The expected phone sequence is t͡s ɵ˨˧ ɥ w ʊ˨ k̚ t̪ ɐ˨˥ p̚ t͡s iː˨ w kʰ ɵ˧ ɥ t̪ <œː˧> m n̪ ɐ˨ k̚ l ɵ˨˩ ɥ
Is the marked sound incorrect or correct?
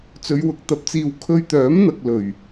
incorrect